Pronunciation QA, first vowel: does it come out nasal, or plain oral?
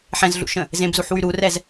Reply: nasal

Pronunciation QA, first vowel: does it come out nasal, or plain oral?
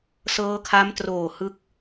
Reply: oral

